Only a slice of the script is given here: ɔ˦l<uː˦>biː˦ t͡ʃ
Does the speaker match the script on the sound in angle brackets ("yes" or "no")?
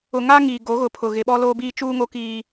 no